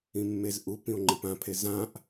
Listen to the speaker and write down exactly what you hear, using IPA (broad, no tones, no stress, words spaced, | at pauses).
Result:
ĩmːezʔupĩo̯ ŋ͡ǃipãpʰe zãʔ